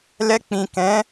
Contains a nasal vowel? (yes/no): yes